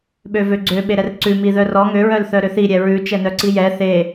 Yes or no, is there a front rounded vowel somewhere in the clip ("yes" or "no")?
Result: yes